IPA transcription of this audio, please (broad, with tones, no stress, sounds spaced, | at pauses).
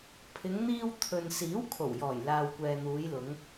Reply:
pʰ ɪ˨˧ ŋ n̪ iː˧ w t̪ʰ ɵ˨ n s iː˨˥ w kʰ o˨˩ w j ɔː˨˩ j l aː˨ w kʷ ɛː˨ n̪ uː˨˧ j l ʊ˨˧ ŋ